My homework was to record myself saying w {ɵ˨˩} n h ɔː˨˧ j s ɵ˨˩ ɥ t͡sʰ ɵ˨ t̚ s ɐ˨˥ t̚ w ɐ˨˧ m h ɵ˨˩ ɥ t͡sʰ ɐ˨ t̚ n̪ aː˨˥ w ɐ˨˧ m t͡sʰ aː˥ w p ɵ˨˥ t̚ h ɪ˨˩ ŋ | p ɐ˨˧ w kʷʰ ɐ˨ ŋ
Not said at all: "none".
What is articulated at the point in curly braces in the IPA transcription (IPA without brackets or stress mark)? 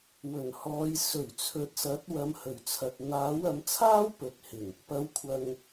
ɵ˨˩